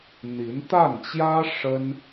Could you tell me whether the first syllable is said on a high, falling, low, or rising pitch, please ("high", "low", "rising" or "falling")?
rising